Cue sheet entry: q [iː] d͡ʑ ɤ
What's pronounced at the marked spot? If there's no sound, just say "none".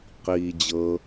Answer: iː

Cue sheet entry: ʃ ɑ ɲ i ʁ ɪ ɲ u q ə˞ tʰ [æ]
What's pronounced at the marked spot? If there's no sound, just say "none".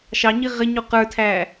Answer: æ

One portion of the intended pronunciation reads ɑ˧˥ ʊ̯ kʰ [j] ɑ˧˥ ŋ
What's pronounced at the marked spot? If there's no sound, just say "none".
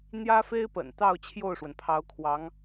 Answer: w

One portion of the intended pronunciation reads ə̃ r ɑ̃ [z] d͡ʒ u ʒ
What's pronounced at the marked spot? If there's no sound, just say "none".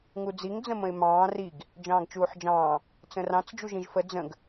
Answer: t͡s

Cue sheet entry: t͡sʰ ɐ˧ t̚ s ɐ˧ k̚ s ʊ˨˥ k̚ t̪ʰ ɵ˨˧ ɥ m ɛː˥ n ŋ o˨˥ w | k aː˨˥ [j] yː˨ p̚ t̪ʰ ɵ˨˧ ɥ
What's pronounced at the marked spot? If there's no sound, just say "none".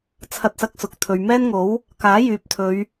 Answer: j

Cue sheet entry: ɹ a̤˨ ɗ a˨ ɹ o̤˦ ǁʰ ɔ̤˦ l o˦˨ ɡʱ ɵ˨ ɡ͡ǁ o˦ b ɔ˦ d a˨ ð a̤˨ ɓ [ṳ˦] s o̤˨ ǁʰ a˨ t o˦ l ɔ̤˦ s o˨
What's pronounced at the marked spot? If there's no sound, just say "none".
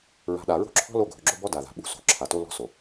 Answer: ṳ˦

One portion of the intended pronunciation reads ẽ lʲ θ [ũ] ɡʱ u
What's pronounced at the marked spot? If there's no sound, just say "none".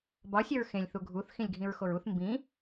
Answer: u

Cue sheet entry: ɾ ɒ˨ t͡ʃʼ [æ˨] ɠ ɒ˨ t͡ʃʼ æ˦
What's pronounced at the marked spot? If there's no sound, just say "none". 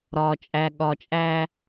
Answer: æ˨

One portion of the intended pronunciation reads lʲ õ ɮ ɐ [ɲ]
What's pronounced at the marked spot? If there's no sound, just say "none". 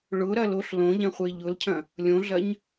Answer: ɲ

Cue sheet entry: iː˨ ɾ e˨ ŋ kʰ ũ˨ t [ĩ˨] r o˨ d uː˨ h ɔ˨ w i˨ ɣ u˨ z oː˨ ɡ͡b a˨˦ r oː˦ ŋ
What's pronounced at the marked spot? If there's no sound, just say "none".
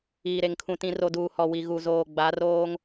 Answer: ĩ˨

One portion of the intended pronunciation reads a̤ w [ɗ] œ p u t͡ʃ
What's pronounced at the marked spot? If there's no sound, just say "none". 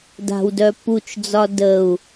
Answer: d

